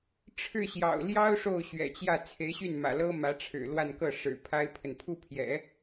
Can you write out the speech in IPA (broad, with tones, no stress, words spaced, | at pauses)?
ʈ͡ʂʰɻ̩˥˩ɕjɑ̰˨˩ʊ̯ ljɑ˥ʊ̯ ʂo˥˩ʊ̯ɕɥɛ̰˨˩t͡ɕjä˥˩ t͡sʰe˧˥ɪ̯ɕy˥˩nmä̰˨˩lɤ˥ mä˧˥ʈ͡ʂʰɻ̩˨˩ lwa˥˧nkɤ˥˩ ʂɻ̩˨˩ pʰa˥ɪ̯pʰə˨n pʰu˥˩pʰjɛ̰˨˩˦